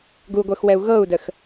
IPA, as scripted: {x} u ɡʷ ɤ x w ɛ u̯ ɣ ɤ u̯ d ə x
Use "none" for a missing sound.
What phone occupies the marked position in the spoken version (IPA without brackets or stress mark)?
ɡ